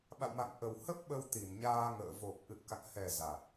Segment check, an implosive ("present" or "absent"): present